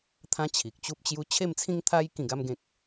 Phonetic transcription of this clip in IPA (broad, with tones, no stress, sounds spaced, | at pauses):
t̪ʰ ã˦ t͡ɕʰ i˨ k̚ t͡ɕ u˦ p̚ t͡ɕ j u˦ t͡ɕʰ e˥˧ m t͡sʰ ĩ˦ ŋ t̪ʰ a˦ j k ĩ˥˧ ɡ a˦ m ɡ ẽ˦ k̚